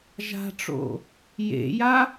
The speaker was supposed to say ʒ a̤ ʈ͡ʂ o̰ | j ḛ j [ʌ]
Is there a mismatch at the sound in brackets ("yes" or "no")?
yes